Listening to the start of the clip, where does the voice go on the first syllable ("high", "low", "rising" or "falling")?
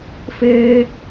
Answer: high